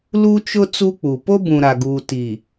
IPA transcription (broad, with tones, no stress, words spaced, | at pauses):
lu˦t͡ʃʊ˦ t͡su˦k͡pu˨ po˦bũ˨ ɾa˨ɡuː˨ti˨